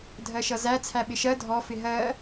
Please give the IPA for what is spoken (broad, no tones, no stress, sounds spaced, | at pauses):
dʱ ɜ ʃ ʌ z æ t͡sʰ æ ɓ ɪ ʃ ɜ dʱ ɔ f ɪ ɦ ɜ